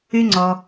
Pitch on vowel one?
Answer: high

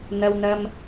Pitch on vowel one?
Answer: high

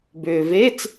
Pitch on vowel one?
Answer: low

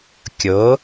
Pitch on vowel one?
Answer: rising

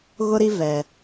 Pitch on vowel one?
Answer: high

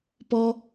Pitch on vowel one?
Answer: high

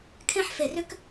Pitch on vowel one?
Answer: high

